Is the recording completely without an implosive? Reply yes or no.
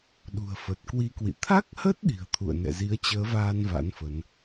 no